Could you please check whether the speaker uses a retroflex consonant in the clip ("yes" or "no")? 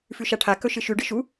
yes